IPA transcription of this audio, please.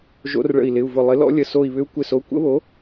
ʒ o̰˧˥ r ɭ ə̰˧˩ i̯ l ɪ˩˧˩ u̯ v ʊ˧˩ lˠ ɪ˩˥ l ɔ̰˧˥ lʲ ə˧˩ s o˧˩ i̯ β ʏ˧˥ u̯ kʷ ɪ˧˩ s o˩˧˩ kʷ ə̰˧˥ β o˩˥

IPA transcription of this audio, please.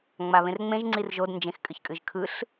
ŋ͡m a β ẽ r ŋ͡m ẽ ʒ ŋ͡ǀ i r ʒ o d n d͡ʒ ẽ x kʼ ɨ ç kʼ ɨ ʒ kʰ ɯ ɬ

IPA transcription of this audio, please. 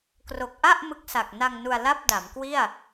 k r o˨˩ k̚ ʔ a˥˩ ʔ m ɯ˦˥ k̚ s a˨˩ k̚ n a˧ ŋ n u˧ a̯ l a˥˩ p̚ d a˩˦ m k w i˥˩ a̯

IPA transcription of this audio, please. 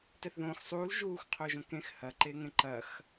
t ɛ θ ð õː x sˤ uː l ʒ uː x qʰ o ʒ õ k ẽ x h ɐ ǃ e ŋ ẽ ǃ ɐ x

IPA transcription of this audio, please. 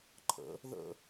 ǃʰ ə̰ | ð ə̰

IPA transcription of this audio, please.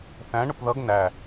θ æ̃ ɳ ʊ p ð ʌ ɡ n æ

